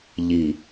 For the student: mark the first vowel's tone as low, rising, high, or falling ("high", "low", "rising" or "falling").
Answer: low